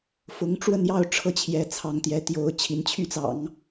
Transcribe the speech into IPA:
f ʊ˧˥ ŋ ʈ͡ʂ w ə˥˧ n j ɑ˥˧ ʊ̯ ʈ͡ʂʰ ɤ˥˩ t͡ɕʰ j ɛ˧˥ t͡sʰ ɑ˧˥ ŋ t̪ j ɛ˧˥ t̪ j o˧˥ ʊ̯ t͡ɕʰ i˧˥ n t͡ɕʰ y˥˩ t͡s ɑ̰˨˩˦ ŋ

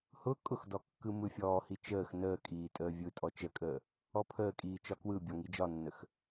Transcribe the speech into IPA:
h ʊ kʼ ʊ x d ɔ kː ɯ m ɯ fʲ ɔː h i t͡ʃ əː x n əː kʼ iː tʼ əː vʲ ɯ tʼ ɔ t͡ʃ ə kʼ əː | ɔ pʰ əː kʼ iː t͡ʃ ɒ k w ɯ bʲ ɔ ŋ i d͡ʒ ɒ nː ə x

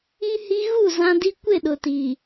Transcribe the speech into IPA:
i˦ h i˦ ɣ u˦˨ z ã˦ d i˦ kʷ ɪ˦˨ ɗ ʊ˨ t i˨

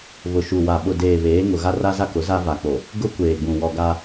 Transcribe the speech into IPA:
β ʊ˨ ʃ u˨ w a˨ ɓ ʊ˨ d eː˨ β eː˨˦ ŋ ʊ˨ ɣ a˦ r a˦ z a˦ k ʊ˨˦ z a˦ v a˨ k͡p o˨ | ɡ ʊ˦ kʷ eː˨ ɡ͡b ũ˨ w ɔ˨ ɡ a˦

